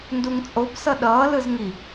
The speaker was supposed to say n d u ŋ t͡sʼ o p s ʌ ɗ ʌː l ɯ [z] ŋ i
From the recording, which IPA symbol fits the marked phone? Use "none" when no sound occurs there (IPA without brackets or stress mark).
z